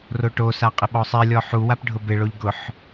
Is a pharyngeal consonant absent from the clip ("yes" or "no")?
no